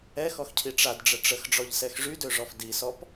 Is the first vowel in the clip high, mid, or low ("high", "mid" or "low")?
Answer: mid